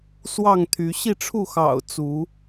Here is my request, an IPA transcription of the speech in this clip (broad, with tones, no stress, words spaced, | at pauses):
swɑ˥˨ŋt̪ʰy˨˦ ɕi˥˨ʈ͡ʂʰu˥˨xɑ̰˨˩ʊ̯ t͡su˨˦